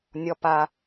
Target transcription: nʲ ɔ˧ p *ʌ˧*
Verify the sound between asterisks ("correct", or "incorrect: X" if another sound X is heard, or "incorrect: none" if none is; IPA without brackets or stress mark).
incorrect: a˧